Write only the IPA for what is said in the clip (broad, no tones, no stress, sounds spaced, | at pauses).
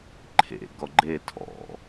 ǃʰ ḛ ɡ ɔ ɡ͡ǃ e tʰ ɔ̰